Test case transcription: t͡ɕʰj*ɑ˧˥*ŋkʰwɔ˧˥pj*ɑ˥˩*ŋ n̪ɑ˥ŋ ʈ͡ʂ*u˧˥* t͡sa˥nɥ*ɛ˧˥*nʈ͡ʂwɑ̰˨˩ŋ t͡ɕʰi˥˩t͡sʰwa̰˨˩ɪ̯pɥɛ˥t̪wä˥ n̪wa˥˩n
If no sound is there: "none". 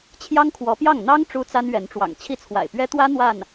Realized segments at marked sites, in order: ɑ˥, ɑ˥˩, u˥, ɛ˧˥

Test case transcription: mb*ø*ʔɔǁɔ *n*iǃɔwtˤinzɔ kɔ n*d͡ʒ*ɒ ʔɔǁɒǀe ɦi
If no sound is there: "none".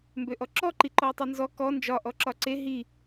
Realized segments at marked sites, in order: ø, ǃ, d͡ʒ

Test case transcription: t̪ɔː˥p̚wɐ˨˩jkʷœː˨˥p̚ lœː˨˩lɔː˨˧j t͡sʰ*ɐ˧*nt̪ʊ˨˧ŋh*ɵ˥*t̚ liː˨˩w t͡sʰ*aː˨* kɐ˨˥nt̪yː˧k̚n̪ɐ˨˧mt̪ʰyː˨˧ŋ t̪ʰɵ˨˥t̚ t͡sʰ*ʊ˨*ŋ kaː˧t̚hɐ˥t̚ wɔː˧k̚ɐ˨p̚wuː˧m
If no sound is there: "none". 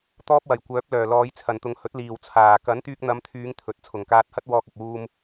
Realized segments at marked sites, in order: ɐ˨˩, ɵ˨˥, aː˨˩, ʊ˨˩

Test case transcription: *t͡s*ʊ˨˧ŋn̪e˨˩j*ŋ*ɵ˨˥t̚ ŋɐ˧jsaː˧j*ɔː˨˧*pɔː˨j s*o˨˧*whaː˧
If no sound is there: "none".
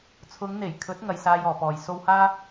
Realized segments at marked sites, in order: t͡sʰ, kʰ, ɔː˨, o˨

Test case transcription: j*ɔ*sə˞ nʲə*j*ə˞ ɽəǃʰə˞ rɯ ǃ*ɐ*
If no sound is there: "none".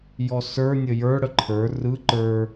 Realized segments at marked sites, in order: ɔ, j, ə˞

